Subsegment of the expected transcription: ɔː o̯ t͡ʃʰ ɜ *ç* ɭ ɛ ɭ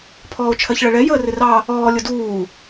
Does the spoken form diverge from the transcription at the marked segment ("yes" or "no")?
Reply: no